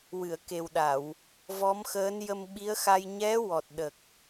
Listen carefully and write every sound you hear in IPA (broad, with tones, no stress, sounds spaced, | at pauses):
w ɨ˨˩˨ ə̯ k e˨˩ w ɗ a˨˩˨ w | v ɔ˧˥ m x əː˧˥ n j ə˧ m ɓ i˧˥ ə̯ x a˧ j ɲ ɛ˧˥ w ɔ˨˩ t̚ ɗ ə˨˩ k̚